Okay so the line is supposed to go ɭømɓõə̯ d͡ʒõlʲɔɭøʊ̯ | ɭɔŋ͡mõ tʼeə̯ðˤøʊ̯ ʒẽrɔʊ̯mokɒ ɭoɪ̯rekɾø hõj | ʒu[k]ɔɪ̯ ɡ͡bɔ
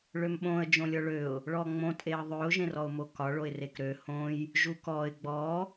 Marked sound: correct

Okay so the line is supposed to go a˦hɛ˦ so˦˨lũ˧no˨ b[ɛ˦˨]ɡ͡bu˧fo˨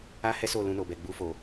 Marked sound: incorrect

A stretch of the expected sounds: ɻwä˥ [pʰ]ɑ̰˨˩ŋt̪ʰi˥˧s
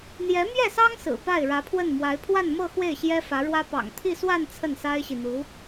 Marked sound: incorrect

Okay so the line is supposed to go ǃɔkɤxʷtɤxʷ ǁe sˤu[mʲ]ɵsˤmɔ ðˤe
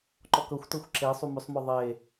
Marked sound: incorrect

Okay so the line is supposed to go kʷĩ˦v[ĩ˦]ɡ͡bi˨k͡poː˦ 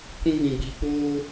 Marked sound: incorrect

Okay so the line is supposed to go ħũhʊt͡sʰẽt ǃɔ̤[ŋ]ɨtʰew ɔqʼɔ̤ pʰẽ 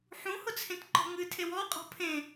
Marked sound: correct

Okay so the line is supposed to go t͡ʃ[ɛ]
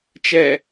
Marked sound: correct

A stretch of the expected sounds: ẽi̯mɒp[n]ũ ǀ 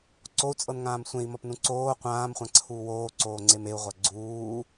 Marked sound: correct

